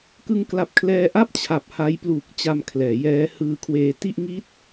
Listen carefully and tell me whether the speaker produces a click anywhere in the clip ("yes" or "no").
no